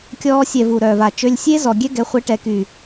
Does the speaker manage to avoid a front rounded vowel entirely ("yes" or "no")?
no